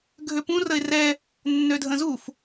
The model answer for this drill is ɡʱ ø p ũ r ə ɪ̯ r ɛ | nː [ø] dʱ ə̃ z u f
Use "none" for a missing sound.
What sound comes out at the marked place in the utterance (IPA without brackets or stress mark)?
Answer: ø